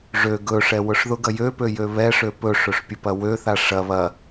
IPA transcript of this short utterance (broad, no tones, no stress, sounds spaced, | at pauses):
ʐ ø ɡ ɵ ʂ ɛ w ʊ ʂ ð ʊ ɡ ɐ j ø p ø j ø β ɛ ʂ ø p ɵ ʂ ɵ ʂ pʲ ʊ p ɐ w ø θ a ʂ ɐ β ɐ